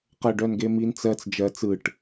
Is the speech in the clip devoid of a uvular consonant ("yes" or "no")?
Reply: no